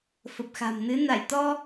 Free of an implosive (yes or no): yes